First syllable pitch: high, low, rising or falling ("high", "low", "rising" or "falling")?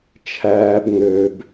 high